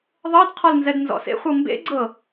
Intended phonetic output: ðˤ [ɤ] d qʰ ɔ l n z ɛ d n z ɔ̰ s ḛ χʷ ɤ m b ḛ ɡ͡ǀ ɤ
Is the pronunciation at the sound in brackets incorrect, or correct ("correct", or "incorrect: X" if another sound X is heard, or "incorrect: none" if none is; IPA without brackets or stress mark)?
correct